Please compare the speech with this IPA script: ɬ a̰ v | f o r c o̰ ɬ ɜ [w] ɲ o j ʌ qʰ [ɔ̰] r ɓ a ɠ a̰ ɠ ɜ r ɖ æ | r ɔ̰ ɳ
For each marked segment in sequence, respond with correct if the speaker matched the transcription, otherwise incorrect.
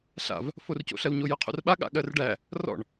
correct, incorrect

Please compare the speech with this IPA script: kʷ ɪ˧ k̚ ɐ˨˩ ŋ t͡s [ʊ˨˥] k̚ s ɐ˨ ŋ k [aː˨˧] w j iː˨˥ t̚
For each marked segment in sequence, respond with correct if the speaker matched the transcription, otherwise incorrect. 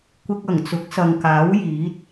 correct, incorrect

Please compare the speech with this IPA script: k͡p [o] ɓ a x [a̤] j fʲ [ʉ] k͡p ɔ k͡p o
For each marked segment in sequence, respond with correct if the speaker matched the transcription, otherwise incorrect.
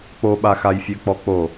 correct, incorrect, incorrect

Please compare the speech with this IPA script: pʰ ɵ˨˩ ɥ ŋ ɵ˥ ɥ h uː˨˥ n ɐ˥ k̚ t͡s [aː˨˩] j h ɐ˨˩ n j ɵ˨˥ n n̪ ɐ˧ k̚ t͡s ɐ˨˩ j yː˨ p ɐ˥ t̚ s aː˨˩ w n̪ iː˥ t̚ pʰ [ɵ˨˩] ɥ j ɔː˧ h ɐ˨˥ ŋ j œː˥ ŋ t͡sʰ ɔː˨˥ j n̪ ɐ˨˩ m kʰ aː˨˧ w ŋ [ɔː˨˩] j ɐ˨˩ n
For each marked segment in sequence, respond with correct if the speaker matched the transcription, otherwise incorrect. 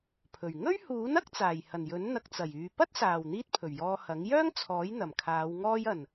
correct, correct, incorrect

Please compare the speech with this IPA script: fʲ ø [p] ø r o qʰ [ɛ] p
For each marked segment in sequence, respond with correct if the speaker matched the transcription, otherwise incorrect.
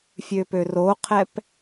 correct, correct

